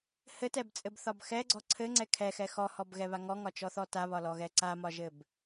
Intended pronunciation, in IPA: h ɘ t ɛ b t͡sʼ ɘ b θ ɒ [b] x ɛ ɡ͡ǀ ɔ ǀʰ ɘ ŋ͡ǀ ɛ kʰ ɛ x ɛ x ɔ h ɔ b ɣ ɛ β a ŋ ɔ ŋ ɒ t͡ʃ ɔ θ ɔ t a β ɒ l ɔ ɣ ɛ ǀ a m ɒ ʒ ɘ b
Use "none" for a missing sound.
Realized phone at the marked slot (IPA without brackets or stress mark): b